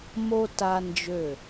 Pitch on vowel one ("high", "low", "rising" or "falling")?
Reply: high